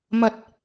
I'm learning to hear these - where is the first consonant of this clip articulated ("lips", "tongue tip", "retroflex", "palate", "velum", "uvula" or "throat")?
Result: lips